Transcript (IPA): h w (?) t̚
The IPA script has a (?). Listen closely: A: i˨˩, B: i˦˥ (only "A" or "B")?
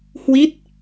B